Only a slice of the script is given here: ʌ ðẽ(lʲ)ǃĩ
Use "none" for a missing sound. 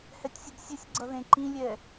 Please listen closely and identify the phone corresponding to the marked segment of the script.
none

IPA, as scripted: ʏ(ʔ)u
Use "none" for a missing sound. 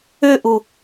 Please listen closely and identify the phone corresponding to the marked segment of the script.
ʔ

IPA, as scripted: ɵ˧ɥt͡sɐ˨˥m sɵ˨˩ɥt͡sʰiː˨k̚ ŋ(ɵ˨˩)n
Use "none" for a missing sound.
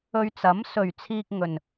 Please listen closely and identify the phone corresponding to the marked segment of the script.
ɵ˨˩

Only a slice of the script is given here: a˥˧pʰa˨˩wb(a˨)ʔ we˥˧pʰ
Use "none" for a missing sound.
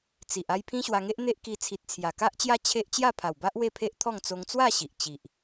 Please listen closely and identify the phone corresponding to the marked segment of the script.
a˦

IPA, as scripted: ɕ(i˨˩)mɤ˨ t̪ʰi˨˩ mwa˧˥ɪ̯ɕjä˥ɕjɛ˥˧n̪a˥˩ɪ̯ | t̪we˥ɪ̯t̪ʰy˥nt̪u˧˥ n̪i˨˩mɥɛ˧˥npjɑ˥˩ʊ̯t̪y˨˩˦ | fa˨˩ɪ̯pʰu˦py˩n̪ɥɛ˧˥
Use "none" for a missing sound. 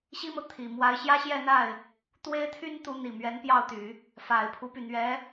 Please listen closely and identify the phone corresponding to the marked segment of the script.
i˥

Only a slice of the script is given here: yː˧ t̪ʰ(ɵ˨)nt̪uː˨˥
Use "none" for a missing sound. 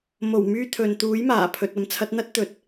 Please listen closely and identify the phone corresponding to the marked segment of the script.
ɵ˨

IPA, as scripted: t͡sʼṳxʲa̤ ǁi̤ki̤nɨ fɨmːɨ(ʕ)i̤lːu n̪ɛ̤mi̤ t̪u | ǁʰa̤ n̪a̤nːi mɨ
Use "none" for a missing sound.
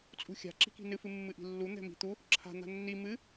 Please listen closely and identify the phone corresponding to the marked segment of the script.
ʔ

